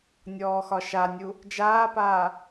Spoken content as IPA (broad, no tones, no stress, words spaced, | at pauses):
nʲɔːxɒʃanʲu | d͡ʒaːpaː